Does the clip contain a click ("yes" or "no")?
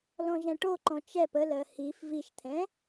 yes